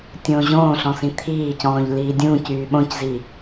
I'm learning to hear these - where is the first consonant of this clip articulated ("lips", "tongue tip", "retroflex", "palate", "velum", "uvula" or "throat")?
tongue tip